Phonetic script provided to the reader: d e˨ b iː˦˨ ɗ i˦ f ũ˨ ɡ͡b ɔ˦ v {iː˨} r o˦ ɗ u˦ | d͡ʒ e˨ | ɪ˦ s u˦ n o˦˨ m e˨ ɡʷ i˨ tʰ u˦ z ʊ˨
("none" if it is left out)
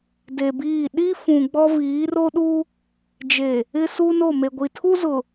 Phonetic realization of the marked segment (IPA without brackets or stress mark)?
iː˨˦